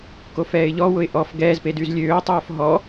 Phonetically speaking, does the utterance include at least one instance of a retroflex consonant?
no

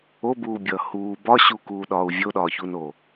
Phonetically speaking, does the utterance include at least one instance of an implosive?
yes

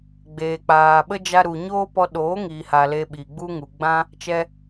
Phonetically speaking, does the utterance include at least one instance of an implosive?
yes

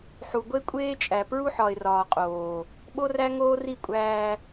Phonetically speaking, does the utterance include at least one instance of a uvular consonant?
yes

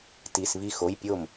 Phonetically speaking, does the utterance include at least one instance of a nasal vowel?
no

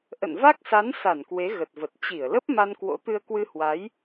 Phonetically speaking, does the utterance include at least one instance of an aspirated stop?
no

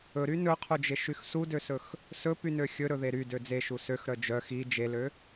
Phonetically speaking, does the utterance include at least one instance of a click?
no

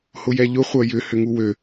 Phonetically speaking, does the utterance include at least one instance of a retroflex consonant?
no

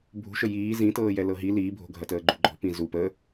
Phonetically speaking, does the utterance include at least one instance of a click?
yes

